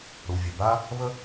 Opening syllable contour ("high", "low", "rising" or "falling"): low